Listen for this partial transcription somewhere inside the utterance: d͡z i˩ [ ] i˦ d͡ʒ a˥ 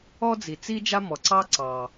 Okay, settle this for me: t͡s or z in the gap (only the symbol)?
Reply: t͡s